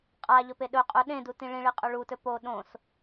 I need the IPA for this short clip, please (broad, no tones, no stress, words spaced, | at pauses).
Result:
qʼaʎɵpe ɗɵ qʼɵ ɗẽ dutĩɭĩɭi qʼɵɭutɵ po ɗõs